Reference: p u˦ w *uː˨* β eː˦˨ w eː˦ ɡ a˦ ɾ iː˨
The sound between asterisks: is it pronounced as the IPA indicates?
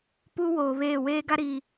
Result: no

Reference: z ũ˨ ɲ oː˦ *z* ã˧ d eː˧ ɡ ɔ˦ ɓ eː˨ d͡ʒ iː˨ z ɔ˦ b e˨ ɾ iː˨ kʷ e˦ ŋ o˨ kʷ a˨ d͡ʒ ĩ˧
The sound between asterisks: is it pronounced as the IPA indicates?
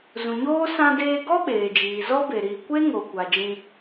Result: no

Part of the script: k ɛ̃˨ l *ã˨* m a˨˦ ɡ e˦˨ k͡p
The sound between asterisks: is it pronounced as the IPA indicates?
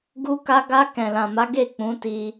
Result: yes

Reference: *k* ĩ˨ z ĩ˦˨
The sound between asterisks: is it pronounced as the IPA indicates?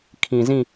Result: no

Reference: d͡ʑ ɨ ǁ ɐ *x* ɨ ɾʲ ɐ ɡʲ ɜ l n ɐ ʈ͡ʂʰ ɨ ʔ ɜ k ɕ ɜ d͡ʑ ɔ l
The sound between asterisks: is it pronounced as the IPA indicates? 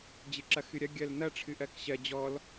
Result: yes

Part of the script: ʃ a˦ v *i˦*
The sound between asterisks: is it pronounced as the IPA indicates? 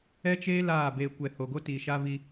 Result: yes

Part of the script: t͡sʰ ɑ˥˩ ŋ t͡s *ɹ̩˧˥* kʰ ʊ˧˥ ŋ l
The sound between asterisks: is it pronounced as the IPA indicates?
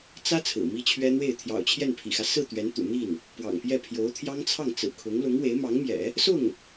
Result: no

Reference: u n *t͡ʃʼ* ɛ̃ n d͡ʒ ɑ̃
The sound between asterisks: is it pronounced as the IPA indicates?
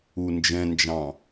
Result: no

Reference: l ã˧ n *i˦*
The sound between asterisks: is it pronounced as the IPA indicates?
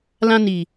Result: no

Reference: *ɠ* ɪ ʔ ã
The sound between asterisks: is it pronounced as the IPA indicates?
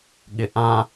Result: yes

